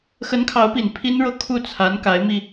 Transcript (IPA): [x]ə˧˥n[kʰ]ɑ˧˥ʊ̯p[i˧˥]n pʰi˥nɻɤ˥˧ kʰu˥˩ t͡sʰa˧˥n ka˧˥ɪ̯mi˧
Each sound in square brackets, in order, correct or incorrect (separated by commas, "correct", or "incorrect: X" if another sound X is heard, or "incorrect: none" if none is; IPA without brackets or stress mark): correct, correct, incorrect: i˨˩